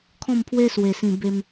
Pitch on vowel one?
falling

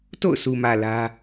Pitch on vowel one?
falling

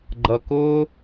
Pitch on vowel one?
low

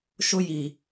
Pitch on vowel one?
high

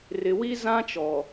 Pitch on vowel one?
low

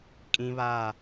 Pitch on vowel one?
high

